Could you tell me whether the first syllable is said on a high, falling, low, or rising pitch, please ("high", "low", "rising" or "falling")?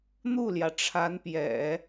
falling